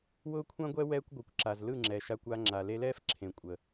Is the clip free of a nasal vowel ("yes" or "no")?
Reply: no